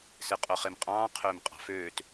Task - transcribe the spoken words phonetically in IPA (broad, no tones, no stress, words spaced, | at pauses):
seqʼoχemqʼɑ̃ː qʰøːmqʼɑ̤føːt